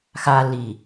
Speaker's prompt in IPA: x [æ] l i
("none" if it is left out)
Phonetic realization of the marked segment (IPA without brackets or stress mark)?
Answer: a